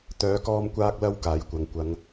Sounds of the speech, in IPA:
t̪ œː˨˧ k ɔː˧ m kʷ aː˧ k̚ l ɐ˧ w k aː˨˥ j kʷ ɐ˨˧ ŋ kʷ ɐ˨˧ ŋ

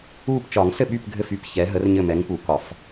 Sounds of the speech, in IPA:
u˦˨ p t͡ʃ ɒ˨˩˦ ŋ s ɘ˦˨ ɓ y˦˨ p ɡʱ ɘ˦˨ f y˦˨ p ç ɛ˨˥ ɦ ə˨˥ r ɲ ɘ˦˨ m ɛ˨˥ ŋ p u˨˩˦ k ɒ˨˩˦ f

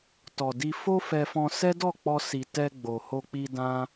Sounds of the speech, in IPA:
t ɔ˨ d i˧ f o˦ f ɛ˧ f ɔ̃˧ s ɛ˦ d ɔ˦˨ k͡p ɔ˧ s i˨ t ɛ˧ ɡ͡b o˨ h o˧ k͡p i˧ d ã˦

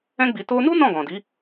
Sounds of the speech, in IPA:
ɛ̃˦ ɡ͡b i˧ t o˧ n u˦ n ɔ̃˦˨ ɡ ɔ̃˨ d i˨˦

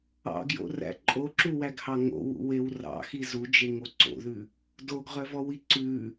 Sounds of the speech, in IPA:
ɑ̰ ɡ j o̰ r æ̰ ǃʼ o ǁ u w æ ɡ h ɑ ŋ o̰ w ṵ w e w r ɑ̰ x i z u d͡ʒ e ŋ o ǀ o̰ ð ʉ | d o ɡ ʁ œ v ɔ w i ǀ ʉ

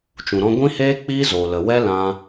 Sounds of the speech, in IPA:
t͡ʃ ũ˨ ɾ ɔ̃˧ ɡʷ ĩ˦ h eː˦ k͡p iː˦ z oː˨ l ə˨ w ɛ˦ l ã˦

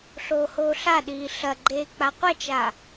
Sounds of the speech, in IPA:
ɬ oː h oː ɬ a ɗ iː ɬ ɐ ɡ͡ǃ eː k͡p a qʷ ɐ t͡ʃ a

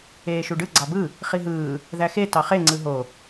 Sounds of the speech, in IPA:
eː ʃ u ɖ ɯ ɡ͡ǀ ɑ b ɯ | χ i ɦ ɯː | ð æ x e t ɑ χ e ŋ͡ǀ ɯ ɦ o

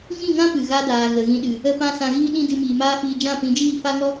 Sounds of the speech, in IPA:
ŋ ĩ˦˨ ŋ ã˦ p ɨ˨ ɣ a˦ d aː˨ ɣ ə˨ ɣ ĩ˧ ɗ ɨ˨ | ə˧ p ã˧ s ã˨ ɣ iː˧ ɗ ĩ˧ d ɨ˧ m iː˨ m aː˦ f iː˧ d͡ʒ ã˦˨ p ĩ˨˦ d͡ʒ iː˦˨ f a˦ ŋ ɔ˦

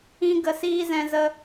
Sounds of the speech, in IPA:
ĩ˦ ɡ ə˧ s iː˦ z ɛ̃˧ z ə˧

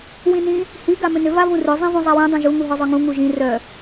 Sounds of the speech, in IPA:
w ĩ n ĩ | h i ɡ a m ʏ n ʏ v a v ũ r ʏ zˤ ĩ v ũ zˤ a w ĩ dˤ ũ ʒ u ŋ u ɦ œ zˤ œ ŋ ũ ŋ u ʒ ĩ r œ

